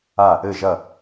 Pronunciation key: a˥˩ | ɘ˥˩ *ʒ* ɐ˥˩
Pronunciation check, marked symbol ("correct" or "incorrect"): correct